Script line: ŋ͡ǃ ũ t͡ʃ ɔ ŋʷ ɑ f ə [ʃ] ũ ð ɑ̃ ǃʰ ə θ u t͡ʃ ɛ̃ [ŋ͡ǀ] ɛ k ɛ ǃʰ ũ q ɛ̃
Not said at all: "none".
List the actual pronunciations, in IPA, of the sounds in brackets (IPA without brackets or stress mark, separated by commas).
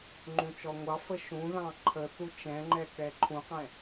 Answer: ʃ, ŋ͡ǃ